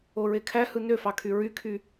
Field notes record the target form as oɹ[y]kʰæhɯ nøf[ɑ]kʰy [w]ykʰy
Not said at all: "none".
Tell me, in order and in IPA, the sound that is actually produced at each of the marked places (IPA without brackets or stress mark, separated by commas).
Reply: e, ɑ, ɹ